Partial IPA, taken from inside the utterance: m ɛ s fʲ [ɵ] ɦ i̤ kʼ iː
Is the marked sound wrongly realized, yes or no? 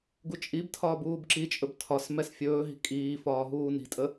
yes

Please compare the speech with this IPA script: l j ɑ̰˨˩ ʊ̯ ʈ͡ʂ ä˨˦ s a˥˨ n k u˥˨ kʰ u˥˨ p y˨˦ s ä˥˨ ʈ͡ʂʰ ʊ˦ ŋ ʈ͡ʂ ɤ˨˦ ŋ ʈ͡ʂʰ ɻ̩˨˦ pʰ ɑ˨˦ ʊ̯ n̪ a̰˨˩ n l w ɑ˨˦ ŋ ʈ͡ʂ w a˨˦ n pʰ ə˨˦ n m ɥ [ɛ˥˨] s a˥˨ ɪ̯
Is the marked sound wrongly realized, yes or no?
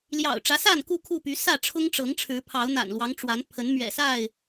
yes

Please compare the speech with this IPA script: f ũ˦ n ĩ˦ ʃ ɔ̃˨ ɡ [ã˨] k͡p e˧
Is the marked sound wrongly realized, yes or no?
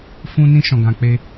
no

